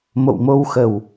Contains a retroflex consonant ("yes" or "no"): no